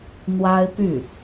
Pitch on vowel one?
high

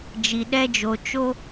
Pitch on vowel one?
low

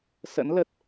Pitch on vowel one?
rising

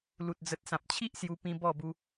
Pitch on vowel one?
low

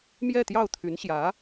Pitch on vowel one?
falling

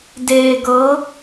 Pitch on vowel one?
low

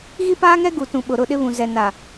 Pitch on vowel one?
high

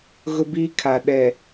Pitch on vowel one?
high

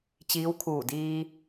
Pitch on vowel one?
rising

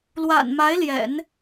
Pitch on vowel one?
low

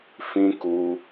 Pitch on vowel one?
high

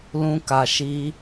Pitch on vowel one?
high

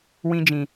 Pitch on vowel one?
high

